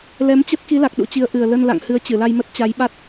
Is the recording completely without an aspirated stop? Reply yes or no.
yes